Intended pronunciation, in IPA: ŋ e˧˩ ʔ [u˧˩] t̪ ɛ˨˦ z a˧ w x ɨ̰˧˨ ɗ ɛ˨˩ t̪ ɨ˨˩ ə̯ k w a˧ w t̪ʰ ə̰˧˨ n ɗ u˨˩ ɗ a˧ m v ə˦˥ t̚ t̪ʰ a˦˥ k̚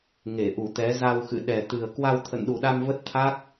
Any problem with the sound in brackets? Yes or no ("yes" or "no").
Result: no